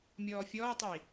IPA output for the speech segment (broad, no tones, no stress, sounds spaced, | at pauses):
mʲ ɔː fʲ ɔː tˤ i